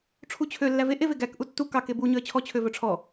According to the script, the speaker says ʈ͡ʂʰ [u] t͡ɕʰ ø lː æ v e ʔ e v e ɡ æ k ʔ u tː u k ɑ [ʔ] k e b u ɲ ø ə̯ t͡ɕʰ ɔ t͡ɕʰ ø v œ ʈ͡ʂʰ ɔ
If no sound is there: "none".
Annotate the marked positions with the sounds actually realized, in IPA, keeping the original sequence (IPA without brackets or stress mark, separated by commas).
u, none